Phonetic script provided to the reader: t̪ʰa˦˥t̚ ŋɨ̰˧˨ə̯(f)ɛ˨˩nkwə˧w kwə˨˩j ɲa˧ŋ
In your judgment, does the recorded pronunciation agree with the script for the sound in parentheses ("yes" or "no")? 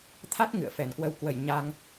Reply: yes